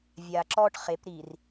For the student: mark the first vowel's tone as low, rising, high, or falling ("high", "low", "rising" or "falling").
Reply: low